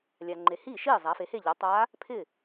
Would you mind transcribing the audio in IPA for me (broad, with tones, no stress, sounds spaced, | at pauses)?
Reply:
lʲ a˨ ŋ͡ǃ e˨ h iː˥˩ ʃ iː˥˩ zˤ æ˩˥ f e˩˥ h e˥˩ ʎ ɔ˩˥ tˤ aː˧˥ | pʰ ɪː˥˩